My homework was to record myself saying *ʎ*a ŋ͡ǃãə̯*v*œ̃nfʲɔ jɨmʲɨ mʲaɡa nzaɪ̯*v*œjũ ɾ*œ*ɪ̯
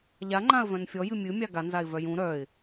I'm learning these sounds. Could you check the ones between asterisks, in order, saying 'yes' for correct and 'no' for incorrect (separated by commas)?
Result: yes, yes, yes, yes